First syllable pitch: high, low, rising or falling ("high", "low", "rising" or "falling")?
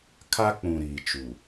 high